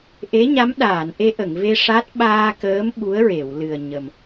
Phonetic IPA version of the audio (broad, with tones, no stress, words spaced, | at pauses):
ʔe˧˥ɲa˧˥mɗaː˨˩˨n ʔe˧ʔə˨˩˨ŋve˧ ʂa˦˥t̚ ɓaː˧kəː˧˥m ɓu˧˥ə̯ɹe˨˩˨w lɨ˨˩ə̯ɲə˨˩m